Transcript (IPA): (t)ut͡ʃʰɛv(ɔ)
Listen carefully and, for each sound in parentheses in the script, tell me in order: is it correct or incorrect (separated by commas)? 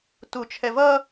correct, incorrect